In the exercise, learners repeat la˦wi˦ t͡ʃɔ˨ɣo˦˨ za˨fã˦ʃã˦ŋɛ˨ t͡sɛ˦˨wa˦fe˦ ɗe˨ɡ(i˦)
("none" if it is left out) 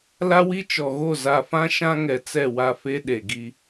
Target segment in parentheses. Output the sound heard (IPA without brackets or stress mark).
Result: i˦